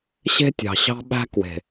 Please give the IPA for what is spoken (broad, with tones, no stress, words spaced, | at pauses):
ɕe̤˦tʲɑ̤˨ ɕɑ̤˦ɓæ̤˦ kwe̤˨